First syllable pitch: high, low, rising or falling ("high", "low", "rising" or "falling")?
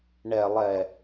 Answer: low